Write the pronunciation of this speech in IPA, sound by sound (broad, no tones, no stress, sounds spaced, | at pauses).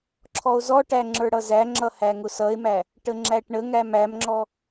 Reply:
ǁʰ ɔ o̯ z ɔ ʈ æ ŋ͡ǁ ə˞ ɽ ʌ z æ ŋ͡ǁ ʌ h æ ŋ ʊ s ʌ e̯ m æ | ʈ ə ŋ͡ǁ æ ʈ ɳ ə ŋ æ m æ m ŋ͡ǁ ɔ